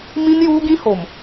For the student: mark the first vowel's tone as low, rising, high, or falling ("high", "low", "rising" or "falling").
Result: high